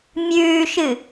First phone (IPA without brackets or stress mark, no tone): mʲ